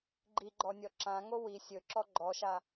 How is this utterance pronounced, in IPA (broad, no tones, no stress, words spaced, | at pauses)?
ɡ͡ǃiɡ͡ǃɔnʲɔ ǁãŋo wi sʲɵǁɔ ɡ͡ǃɔʃa